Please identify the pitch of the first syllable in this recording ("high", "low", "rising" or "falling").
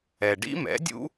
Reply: low